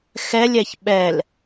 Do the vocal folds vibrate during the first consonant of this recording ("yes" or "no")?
no